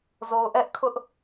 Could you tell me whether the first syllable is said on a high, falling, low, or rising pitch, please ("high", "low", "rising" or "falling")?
low